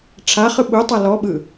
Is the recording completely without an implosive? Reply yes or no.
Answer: no